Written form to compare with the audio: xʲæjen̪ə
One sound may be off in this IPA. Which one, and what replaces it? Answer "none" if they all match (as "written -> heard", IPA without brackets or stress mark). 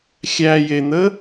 none